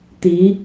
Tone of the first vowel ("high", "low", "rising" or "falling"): rising